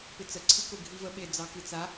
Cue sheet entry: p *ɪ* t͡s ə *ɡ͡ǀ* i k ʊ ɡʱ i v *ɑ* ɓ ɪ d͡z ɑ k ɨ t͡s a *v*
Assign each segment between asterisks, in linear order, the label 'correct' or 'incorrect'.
correct, incorrect: ǀʰ, incorrect: ə, incorrect: none

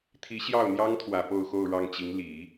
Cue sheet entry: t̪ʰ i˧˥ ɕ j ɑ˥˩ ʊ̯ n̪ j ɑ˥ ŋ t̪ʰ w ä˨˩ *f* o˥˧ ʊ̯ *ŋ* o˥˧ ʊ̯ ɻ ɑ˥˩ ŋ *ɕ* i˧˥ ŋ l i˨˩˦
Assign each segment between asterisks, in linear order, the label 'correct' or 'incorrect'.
incorrect: p, incorrect: x, incorrect: t͡ɕ

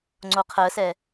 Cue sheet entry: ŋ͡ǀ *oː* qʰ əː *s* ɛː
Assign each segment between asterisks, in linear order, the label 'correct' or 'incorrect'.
incorrect: o, correct

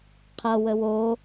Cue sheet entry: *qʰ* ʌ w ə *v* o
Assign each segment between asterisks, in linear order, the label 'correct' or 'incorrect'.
correct, incorrect: w

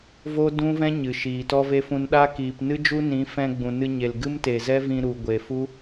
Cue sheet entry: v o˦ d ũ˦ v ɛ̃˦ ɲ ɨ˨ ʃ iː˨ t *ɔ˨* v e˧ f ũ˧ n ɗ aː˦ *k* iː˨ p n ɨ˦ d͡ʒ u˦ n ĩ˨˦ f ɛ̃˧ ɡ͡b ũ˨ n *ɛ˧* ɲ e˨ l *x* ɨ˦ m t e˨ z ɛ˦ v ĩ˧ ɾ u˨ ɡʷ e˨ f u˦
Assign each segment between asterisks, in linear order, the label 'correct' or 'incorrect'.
incorrect: ɔ˦, correct, incorrect: ɨ˧, incorrect: ɡ

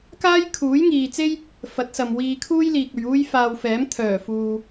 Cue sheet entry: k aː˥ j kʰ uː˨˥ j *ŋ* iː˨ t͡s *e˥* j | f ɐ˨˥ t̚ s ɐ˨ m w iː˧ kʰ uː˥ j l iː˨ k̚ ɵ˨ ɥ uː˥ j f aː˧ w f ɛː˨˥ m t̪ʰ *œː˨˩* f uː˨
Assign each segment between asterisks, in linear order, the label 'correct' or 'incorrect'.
correct, correct, correct

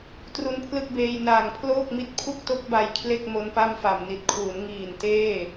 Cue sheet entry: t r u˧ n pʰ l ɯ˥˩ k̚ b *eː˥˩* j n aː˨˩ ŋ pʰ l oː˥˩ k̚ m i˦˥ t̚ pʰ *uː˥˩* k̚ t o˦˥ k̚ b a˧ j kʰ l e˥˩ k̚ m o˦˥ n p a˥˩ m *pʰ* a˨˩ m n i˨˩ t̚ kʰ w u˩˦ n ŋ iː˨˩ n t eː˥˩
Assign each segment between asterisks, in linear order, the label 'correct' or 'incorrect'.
incorrect: eː˧, incorrect: u˥˩, incorrect: f

